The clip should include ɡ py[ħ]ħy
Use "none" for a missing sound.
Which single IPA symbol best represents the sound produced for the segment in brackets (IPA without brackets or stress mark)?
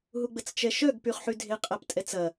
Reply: χ